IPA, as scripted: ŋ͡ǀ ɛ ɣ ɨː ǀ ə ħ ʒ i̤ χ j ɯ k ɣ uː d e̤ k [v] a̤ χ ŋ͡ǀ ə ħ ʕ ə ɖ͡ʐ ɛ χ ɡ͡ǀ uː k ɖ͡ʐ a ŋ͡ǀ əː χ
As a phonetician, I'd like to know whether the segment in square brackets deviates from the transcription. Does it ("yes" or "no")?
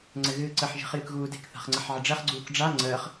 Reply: yes